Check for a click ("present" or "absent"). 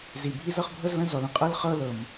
absent